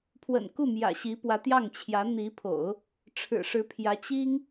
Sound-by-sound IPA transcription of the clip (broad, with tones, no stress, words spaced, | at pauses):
pʰwə̰˨˩nku˥˩ mjä̰˨˩ɕi˧˥pwä˧˥t̪jɑ˥˩ŋ t͡ɕʰjä˧˥n̪i˧˥pʰo̰˨˩˦ʊ̯ | ʈ͡ʂʰɻ̩˨˩ʂɻ̩˧˥pʰjä˧˥ t͡ɕi˥ŋ